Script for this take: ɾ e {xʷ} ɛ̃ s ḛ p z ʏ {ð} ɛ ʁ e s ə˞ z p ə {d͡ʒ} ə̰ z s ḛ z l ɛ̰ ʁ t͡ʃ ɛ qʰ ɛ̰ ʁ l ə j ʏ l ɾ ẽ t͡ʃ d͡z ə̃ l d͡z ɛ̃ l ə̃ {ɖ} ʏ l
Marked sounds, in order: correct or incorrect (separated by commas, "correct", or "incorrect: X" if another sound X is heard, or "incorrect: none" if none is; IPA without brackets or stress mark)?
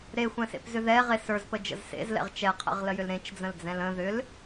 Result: correct, correct, correct, incorrect: ð